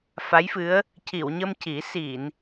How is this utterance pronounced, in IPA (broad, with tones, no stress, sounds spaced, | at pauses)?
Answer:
f a˧˥ j f ɨ˧˥ ə̯ | c i˨˩˨ w ɲ ə˧ m c i˨˩˦ s i˨˩˨ n